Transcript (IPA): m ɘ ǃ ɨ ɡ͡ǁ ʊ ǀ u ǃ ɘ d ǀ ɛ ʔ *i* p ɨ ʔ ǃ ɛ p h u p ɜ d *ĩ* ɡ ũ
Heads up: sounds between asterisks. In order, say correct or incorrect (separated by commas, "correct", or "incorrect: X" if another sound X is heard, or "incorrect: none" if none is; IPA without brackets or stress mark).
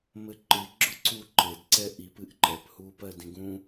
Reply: correct, correct